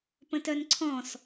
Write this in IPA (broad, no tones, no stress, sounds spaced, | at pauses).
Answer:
p ə̃ t œ n ǀʰ ɔ̃ s